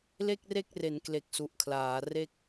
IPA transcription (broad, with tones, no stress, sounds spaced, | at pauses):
l e˥˩ k̚ r e˥˩ k̚ r e˩˦ n k l e˨˩ k̚ s u˨˩ ʔ kʰ l aː˩˦ r e˥˩ k̚